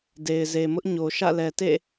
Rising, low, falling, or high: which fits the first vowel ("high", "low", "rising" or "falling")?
low